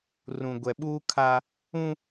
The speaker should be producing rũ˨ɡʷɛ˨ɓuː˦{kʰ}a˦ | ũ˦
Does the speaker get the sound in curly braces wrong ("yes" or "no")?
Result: no